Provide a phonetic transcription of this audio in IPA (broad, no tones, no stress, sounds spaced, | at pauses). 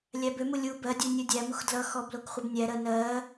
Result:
lʲ æ b ø m u lʲ u b ɜ dʲ u nʲ u dʲ æ m u x d l ʌ x ɔ b l o k χʷ ɜ b nʲ æ ɾ ɜ n ɜ